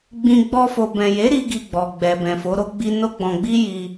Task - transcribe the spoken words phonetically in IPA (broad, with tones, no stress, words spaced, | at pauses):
ɡ͡bĩ˧ ɡ͡bɔ˧fo˨bɛ̃˨je˨˦ ɾi˦ɡi˧ɡ͡bɔ˨ɡ͡bɛ˨ bɛ̃˨fo˨˦ɾo˦ɡ͡bi˦ no˦ɡ͡bɔ̃˧ɡ͡bi˦ ji˧